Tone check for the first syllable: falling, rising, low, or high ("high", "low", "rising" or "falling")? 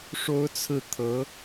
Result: high